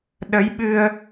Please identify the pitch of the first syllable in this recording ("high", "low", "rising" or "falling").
rising